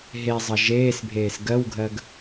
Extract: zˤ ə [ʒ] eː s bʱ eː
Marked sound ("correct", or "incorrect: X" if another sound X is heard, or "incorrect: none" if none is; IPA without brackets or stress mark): correct